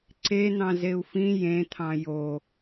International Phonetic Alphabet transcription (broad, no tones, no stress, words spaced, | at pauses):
ǀen̪ɑ̃ zeu̯fĩ jẽt̪ʰɑ̃ jo